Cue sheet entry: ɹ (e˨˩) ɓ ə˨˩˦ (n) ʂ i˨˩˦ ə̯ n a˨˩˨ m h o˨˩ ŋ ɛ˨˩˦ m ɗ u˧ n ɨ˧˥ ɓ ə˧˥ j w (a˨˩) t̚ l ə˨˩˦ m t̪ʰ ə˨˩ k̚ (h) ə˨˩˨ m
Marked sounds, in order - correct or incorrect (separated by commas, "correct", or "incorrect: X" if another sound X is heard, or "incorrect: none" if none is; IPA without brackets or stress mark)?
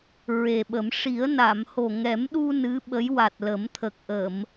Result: correct, incorrect: m, correct, incorrect: ʔ